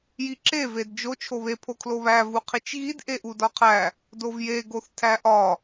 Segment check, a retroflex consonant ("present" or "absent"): absent